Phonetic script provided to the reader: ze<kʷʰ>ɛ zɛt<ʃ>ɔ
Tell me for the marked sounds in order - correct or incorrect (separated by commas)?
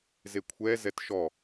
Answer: correct, correct